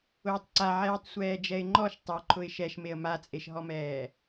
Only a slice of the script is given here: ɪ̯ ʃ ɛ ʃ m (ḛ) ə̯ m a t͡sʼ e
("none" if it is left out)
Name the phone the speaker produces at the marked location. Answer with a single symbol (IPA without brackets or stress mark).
e